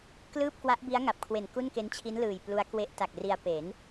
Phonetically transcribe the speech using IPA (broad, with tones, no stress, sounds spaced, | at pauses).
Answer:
k l ɯː˥˩ p̚ k w a˦˥ ʔ b i˦˥ a̯ ŋ a˨˩ p̚ kʰ w e˨˩ n k u˥˩ n k e˦˥ n t͡ɕʰ i˦˥ n l ɯː˨˩ j p l u˦˥ a̯ k w e˦˥ ʔ t a˨˩ k̚ r i˧ a̯ p e˩˦ n